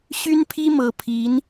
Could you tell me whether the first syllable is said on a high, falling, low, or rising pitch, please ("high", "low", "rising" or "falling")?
high